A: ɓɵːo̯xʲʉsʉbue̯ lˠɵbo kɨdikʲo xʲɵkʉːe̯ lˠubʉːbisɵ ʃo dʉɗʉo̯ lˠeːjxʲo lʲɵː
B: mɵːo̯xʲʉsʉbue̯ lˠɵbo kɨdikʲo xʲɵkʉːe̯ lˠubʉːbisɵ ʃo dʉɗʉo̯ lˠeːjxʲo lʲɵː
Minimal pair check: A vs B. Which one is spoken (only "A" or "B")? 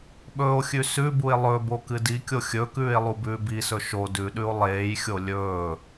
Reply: A